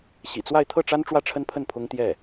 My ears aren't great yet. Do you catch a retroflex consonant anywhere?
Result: yes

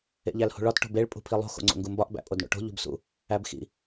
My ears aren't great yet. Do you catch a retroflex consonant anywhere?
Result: yes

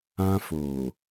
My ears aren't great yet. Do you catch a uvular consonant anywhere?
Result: no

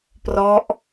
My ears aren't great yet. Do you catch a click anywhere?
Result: no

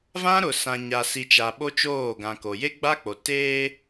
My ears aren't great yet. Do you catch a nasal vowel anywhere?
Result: yes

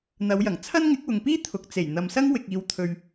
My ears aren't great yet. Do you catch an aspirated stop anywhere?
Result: yes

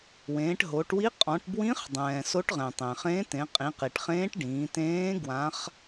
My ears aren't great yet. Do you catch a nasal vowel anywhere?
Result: yes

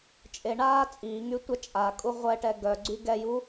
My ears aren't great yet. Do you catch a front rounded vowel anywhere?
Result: yes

